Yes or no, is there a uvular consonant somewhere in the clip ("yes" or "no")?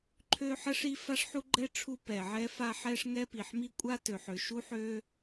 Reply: no